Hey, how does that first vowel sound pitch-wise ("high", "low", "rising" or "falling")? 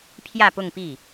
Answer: falling